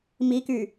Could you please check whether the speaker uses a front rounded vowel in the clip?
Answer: yes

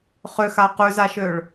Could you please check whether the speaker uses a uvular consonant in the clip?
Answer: yes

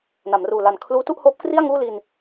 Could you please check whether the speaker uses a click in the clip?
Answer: no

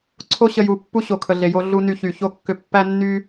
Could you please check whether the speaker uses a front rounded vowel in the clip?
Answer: yes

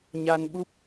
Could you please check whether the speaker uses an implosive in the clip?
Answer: yes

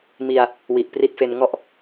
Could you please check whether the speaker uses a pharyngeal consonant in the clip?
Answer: no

